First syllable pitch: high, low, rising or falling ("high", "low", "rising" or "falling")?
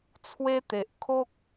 high